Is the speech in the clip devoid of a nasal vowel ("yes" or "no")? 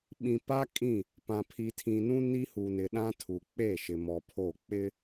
no